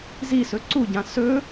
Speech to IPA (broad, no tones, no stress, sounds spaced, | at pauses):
z i s ɵ ǀ u ɟ ã s ɵ